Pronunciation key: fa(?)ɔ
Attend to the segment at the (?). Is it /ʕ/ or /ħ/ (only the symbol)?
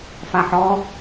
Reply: ħ